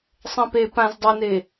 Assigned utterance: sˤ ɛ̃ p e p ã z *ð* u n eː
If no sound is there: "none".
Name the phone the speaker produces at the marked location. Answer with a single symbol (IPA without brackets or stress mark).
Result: dˤ